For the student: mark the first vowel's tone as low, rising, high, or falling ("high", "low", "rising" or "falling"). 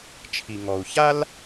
low